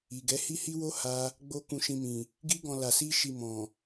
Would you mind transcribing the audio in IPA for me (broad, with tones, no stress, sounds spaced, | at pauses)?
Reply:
i˨ ɡ ɛ˨˦ h i˦ h i˦ w o˦ h a˦ | ɡ͡b o˦ k ũ˧ ʃ ĩ˧ m ĩ˨ | ɡ i˦ ɡ ɔ̃˧ l a˧ s i˦ ʃ i˧ m ɔ̃˨